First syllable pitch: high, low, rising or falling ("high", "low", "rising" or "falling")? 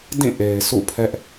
falling